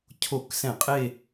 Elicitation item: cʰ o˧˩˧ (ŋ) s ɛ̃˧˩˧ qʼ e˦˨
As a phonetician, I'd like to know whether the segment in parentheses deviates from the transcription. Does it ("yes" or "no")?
yes